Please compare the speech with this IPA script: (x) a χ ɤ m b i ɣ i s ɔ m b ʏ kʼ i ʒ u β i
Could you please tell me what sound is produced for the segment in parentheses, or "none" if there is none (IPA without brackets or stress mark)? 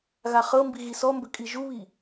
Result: ɣ